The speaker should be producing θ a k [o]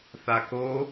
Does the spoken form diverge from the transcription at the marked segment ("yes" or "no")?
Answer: no